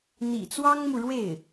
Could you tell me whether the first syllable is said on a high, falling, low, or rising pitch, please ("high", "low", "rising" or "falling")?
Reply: low